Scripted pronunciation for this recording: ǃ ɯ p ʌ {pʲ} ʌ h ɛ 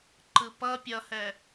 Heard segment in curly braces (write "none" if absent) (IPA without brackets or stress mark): pʲ